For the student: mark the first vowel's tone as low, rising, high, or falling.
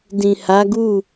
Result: low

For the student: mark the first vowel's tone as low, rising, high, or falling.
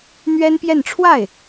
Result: high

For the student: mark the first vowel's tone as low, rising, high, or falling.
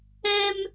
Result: high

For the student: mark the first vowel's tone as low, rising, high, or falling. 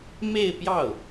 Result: falling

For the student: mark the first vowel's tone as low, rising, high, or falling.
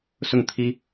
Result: falling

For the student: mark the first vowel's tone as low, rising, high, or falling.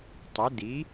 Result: rising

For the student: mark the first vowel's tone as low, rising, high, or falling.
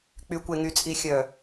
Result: low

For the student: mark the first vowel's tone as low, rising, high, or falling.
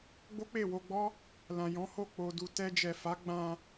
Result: high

